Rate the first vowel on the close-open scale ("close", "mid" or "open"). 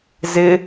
close